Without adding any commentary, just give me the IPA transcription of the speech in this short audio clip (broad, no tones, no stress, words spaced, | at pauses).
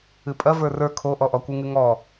ɨpʼɐ və˞rə˞ kʰoʔɔʔɔkʷɨ ŋɨŋɔ